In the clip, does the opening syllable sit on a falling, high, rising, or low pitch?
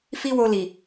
high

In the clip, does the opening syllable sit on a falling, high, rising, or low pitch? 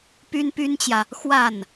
high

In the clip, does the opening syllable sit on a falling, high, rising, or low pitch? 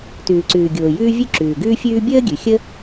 low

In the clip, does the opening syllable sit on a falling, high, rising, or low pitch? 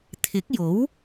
rising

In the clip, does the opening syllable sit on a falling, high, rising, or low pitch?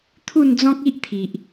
falling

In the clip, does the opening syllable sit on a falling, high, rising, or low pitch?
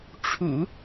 low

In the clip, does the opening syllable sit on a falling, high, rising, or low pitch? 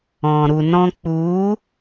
low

